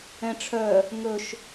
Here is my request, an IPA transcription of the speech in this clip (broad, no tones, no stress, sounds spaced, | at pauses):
ɛ̃ ʈ͡ʂʰ œ | ŋ ɵ ʃ